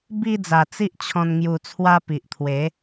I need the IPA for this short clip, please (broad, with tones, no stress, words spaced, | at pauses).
bi˧d͡za˨˩ t͡si˦ʔt͡ɕʰɔ̃˧n ŋju˧t͡sʰwa˦ pi˨ʔt̪ʰwe˨˦